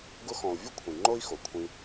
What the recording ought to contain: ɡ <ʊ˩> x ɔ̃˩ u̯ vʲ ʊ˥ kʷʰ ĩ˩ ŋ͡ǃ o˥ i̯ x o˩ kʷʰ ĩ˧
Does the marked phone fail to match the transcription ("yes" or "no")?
yes